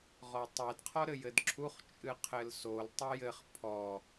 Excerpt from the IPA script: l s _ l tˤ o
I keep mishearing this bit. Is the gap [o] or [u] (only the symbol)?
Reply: o